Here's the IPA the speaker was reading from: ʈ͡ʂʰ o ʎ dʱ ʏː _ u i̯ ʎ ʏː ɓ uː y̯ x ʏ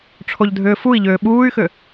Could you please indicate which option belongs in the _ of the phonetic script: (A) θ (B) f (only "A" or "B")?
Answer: B